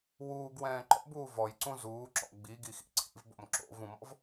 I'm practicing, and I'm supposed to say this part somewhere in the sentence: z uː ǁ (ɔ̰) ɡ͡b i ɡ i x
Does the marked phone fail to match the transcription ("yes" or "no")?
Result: no